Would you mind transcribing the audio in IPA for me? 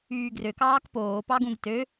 yː ɡ r ø k ɑː k p oː p ɑ ɡ ũ ɡ t ø

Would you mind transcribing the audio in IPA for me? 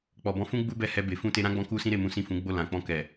k͡p ɔ˨ b ɔ̃˨˦ f ũ˦ ɡ͡b u˦ b ɛ˦˨ h ɛ˧ b e˨ f ũ˧ t e˧ ɾ ã˦ ɡ͡b ɔ̃˧ k u˦ s ĩ˦ ɾ e˦˨ m ũ˨˦ s ĩ˦˨ f ũ˨˦ ɡ͡b o˦˨ l ã˨ k͡p ɔ̃˧ k ɛ˨

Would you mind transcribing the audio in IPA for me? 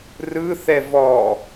r ɯ θ ɛ v ɔ

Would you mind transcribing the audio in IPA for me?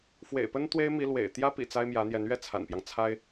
f w ḛ˨˩ ɪ̯ p ə˥ n t̪ w e˥ ɪ̯ m i˧˥ l w ḛ˨˩ ɪ̯ t̪ j ä˥ p ḭ˨˩ t͡s a˥ ɪ̯ m j ä˧˥ n̪ j ɛ˧˥ n ɥ ɛ˥˩ t͡sʰ a̰˨˩ n p j ɑ˦ ŋ t͡sʰ a˥ ɪ̯

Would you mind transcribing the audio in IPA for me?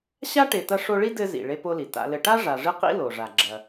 ɕ a˥ ʈ e˨ t ɐ˦ ʂ o˦ ɭ i˥ d ɘ˦ z ḭ˩ ɭ e˦ p o˦ l i˩ t a̰˨ l ɘ˨ ʈ a˥ ʐ a˨ ʐ ɨ˥ q ḭ˥ l o˩ ʐ a˩ ɡ͡ǁ ɐ˩

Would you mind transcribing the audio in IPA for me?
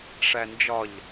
ʂ æ n d͡ʒ ɒ ʎ

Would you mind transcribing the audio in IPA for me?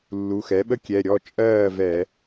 lː u˩˧˩ x ɛ˩˥ ɓ ə˦ kʲ ɛ˩˧˩ ɾʲ ɔ˥˩ t͡ʃʼ ɜː˥˩ v ɛ˧˩˧

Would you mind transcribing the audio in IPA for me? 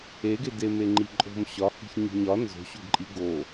e ɡ e d e m e ŋ͡ǃ i ǃʼ o̤ m ɕ ɒ h i̤ ç ɲ i̤ ɲ ɒ n z o̤ ɕ o ɡ ǃʼ i ɡ o

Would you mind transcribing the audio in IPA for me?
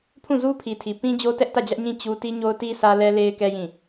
pʰ ũ˦˨ z u˦ pʰ i˨ tʰ i˨ p ĩ˦ d͡ʑ o˦ t ɛ˦ ʔ t ä˦˨ d͡ʑ ä˦ ʔ ɲ ĩ˦˨ t͡ɕ u˦ t i˦ ɲ o˦ ʊ̯ t i˦ s ä˦ l ɛ˦ l e˦ ɪ̯ k ɛ˦ j ĩ˦˨

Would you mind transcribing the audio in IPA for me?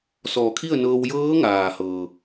s ɔː˧˩ kʰ i˥˨ ə̯ n ɤː˧ w j ɤː˧˥ ŋ aː˩ h ɤː˩

